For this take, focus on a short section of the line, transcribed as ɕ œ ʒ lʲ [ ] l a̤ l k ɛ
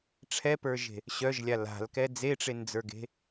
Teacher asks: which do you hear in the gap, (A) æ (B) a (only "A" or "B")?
B